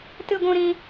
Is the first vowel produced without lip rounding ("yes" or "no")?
yes